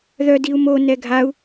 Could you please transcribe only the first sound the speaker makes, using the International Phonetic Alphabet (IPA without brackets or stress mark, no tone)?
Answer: ð